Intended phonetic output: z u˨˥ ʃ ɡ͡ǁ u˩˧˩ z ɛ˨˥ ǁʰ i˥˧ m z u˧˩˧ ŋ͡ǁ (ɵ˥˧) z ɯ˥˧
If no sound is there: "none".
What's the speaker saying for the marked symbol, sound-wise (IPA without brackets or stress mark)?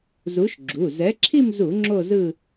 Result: o˥˧